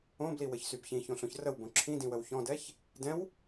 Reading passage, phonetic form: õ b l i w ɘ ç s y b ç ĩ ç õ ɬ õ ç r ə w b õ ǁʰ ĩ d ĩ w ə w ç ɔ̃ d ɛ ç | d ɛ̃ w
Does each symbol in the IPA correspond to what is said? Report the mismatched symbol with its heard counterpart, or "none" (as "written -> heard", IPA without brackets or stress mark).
none